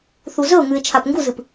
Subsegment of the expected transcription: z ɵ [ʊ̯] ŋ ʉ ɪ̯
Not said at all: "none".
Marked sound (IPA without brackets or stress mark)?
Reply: ʊ̯